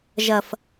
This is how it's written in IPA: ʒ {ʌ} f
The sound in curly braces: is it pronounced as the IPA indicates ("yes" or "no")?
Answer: yes